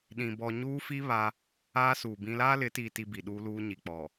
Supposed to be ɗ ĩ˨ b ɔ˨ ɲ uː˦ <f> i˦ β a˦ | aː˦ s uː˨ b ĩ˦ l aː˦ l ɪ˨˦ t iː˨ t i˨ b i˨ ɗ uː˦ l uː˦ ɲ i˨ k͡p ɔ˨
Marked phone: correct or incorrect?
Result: correct